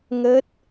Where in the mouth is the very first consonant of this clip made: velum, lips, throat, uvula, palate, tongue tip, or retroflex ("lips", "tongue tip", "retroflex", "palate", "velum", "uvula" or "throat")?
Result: velum